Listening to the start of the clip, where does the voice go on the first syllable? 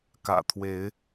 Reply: low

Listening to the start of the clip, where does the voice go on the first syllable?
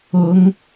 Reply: rising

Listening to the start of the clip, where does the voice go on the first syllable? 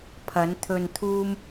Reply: rising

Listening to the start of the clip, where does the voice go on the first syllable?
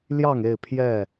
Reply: falling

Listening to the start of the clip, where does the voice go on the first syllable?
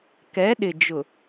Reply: rising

